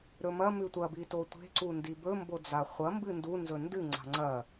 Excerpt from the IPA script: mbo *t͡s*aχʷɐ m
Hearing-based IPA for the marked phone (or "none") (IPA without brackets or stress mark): d͡z